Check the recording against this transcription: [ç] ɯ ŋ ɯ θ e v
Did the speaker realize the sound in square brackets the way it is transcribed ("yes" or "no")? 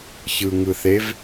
yes